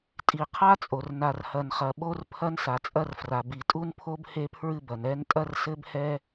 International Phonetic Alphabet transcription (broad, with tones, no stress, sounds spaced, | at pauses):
tʼ i˩ qʰ a˥ t͡sʼ o˩ r n a˩ r h ɐ˩ n χ ɐ˩ ɓ o˥ r pʰ ɐ˥ n s a˩ t͡sʼ ɐ˥ r f r a˩ b i˩ tʼ u˥ n pʰ o˥ b h e˥ pʰ ɹ ɨ˥ b ɐ˩ n ɛ˥ n tʼ ɐ˥ r s ɘ˥ b h ɛ˥